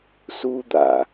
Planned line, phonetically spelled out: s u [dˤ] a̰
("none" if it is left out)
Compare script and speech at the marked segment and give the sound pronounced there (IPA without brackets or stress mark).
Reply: d̪